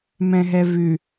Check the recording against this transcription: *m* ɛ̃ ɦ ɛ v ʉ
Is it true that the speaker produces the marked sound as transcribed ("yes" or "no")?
yes